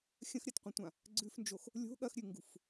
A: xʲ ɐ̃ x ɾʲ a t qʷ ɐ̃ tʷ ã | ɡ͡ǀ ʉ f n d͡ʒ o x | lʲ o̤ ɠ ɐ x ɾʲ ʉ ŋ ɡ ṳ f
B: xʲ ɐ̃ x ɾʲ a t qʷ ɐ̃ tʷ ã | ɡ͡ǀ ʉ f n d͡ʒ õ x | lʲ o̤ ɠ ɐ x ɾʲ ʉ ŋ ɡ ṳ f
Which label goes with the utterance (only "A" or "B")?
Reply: A